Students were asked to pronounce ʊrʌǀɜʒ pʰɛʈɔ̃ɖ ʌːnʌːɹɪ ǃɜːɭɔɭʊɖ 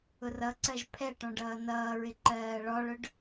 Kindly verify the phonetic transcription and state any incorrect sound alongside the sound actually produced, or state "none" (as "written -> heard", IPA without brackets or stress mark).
none